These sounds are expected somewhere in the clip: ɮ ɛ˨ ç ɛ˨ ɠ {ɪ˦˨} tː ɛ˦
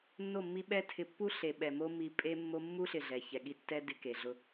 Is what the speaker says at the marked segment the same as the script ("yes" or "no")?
no